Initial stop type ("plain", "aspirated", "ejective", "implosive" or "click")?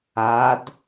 plain